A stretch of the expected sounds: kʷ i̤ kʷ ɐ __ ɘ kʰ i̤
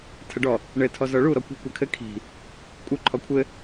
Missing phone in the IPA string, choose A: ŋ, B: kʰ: B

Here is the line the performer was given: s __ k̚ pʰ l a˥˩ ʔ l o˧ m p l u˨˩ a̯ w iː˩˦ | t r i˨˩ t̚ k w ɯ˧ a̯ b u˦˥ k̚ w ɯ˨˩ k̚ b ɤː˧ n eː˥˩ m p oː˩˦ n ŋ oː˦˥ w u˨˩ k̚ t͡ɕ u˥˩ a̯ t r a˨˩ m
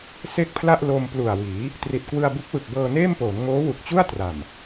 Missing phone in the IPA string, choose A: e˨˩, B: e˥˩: B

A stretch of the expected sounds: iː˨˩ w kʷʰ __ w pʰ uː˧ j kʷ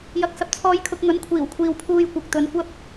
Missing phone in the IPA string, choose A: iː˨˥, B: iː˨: B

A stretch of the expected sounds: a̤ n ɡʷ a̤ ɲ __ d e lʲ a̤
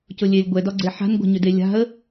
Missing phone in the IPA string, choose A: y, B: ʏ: B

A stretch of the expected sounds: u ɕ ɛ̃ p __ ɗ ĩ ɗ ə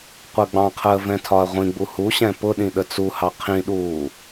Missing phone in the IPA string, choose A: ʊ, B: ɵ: A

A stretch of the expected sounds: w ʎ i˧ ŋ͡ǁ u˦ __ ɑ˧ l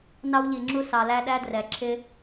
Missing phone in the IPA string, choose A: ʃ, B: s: B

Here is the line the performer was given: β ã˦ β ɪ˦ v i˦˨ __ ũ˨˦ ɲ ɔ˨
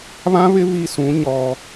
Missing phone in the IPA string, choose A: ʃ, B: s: B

